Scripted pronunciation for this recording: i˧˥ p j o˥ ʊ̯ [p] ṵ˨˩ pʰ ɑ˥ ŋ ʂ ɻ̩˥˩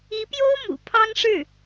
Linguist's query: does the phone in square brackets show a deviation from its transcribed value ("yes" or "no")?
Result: yes